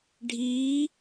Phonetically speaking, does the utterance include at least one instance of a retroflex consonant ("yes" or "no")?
yes